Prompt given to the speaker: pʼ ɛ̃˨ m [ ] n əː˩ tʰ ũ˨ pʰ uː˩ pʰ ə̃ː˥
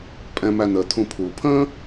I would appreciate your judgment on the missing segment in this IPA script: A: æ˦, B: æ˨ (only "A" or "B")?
B